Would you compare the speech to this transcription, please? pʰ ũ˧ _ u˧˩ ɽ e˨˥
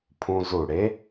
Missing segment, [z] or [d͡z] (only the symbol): z